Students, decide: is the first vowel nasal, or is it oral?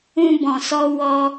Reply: nasal